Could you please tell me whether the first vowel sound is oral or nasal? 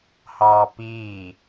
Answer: oral